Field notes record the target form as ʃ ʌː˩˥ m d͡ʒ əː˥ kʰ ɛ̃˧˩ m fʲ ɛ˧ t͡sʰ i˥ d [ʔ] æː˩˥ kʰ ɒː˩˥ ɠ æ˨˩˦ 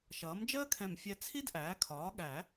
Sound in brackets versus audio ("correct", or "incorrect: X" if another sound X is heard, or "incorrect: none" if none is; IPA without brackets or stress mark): correct